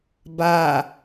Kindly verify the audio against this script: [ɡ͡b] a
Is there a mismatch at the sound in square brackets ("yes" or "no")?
yes